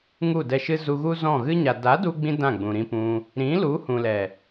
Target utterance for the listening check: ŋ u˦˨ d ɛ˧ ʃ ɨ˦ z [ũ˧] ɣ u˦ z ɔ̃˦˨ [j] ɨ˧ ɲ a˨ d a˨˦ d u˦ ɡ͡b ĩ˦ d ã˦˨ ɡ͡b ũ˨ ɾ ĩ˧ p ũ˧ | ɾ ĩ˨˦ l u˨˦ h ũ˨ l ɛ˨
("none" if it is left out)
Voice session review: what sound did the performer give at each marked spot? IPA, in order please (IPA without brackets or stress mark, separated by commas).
u˧, ɣ